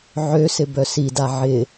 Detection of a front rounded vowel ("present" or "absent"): present